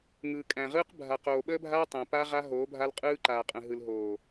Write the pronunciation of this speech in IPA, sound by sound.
ŋ ɯː˨ kʼ æ̃˨ ʁ ɯː˦ q bʱ a˨ q oː˨ ɓ əː˦ bʱ aː˦ tˤ æ̃˨ p a˦ ʁ a˦ ɦ oː˨˦ bʱ a˦ l qʼ ɯː˦ ǃ aː˨ qʼ ə̃˨ ɦ ɯ˨ l ɦ oː˨

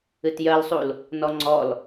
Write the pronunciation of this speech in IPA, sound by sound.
ɨ t j ɜ l sˤ u l | n ɔ ŋ͡ǀ ɔ l

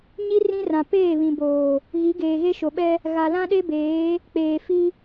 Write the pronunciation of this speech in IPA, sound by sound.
ɲ i˦ r ĩ˦ r ã˨ p eː˦˨ β ĩ˨ b oː˨ | ɣ i˨˦ ɡ eː˨ ɣ e˦ ʃ o˨ ɓ ɛ˦ | ɣ a˨ l ã˦ ɗ e˦ b eː˨˦ | k͡p eː˨ f i˦

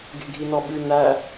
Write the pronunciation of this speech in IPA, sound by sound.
ɡ e̤ ɡʱ i n ɔ ɓ ʉ n æ

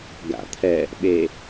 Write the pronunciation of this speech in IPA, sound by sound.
ɡ a̰ t̪ʰ ɛ | ɓ e

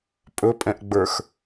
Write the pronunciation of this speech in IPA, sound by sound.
pʼ ɵ pʼ ɛ̃ ʔ ɡ͡b ə˞ x

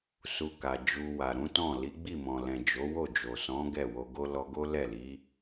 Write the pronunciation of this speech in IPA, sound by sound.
s u˧ k a˨ d͡ʒ u˧ w a˨ ɾ ũ˨˦ t ɔ̃˦˨ l i˨˦ ɡ͡b i˦˨ m ɔ̃˨ l ɛ̃˨ d͡ʒ o˨˦ w o˦˨ d͡ʒ o˨ s ɔ̃˨˦ ɡ ɛ˦˨ w o˧ ɡ o˦ l ɔ˧ ɡ o˦ l ɛ˦˨ l i˨˦

